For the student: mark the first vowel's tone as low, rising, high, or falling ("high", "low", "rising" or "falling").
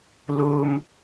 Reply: low